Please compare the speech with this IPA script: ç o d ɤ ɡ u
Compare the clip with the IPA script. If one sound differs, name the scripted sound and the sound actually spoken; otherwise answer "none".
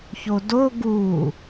ɤ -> o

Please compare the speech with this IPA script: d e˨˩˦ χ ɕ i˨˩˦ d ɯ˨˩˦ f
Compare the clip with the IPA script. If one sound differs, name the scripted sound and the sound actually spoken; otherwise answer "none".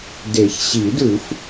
χ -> ç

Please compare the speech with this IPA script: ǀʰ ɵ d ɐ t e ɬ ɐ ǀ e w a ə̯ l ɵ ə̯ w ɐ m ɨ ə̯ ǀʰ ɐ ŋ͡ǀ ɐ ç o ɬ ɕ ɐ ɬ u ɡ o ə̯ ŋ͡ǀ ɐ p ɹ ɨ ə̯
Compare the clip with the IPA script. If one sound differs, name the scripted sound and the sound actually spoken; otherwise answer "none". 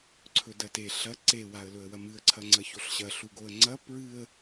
none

